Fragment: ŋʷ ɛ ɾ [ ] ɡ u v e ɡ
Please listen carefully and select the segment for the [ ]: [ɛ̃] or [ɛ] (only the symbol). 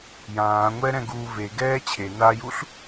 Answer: ɛ̃